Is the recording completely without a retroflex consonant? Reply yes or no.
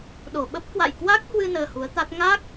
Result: yes